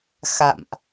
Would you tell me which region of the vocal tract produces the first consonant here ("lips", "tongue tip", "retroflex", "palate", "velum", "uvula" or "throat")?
velum